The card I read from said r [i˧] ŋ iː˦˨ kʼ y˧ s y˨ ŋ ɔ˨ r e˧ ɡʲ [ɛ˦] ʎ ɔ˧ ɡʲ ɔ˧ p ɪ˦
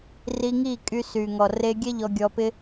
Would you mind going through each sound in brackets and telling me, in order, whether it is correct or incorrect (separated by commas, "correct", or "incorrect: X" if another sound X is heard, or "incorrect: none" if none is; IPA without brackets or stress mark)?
correct, correct